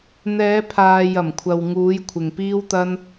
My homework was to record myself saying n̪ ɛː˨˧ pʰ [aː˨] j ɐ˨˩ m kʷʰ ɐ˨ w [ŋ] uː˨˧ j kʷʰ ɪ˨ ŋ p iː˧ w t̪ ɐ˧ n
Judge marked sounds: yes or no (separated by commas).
yes, yes